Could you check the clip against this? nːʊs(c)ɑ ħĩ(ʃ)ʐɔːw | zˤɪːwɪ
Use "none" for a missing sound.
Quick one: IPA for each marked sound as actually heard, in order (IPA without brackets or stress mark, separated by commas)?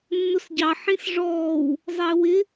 ɟ, s